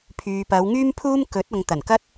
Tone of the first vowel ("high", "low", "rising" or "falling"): low